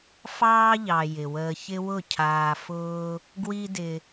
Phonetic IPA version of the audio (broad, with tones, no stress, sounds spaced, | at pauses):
f ɑː˦ ʎ ɑ˨ j ɪ˨ w əː˧ ç ɪ˦ w ʊ˦˨ cʰ aː˧ f ʊː˦ | ɡ w i˦ d ɪ˧